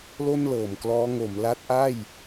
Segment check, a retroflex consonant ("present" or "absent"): absent